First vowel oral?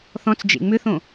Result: no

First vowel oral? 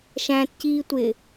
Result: no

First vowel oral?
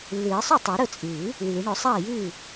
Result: yes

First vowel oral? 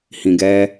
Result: no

